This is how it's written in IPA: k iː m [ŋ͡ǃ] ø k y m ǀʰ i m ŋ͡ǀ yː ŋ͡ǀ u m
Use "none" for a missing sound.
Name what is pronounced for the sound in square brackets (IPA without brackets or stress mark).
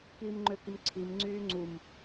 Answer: ŋ͡ǃ